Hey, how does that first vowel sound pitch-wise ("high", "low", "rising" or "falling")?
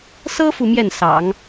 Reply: high